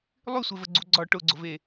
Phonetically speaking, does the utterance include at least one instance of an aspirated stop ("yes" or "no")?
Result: no